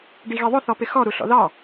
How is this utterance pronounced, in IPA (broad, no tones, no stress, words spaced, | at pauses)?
ɖiɣiðˤʊ θɔpɪxɔ ɾuɬɔ̰ðɑ